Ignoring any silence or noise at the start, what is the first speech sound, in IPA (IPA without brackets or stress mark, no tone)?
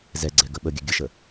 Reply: z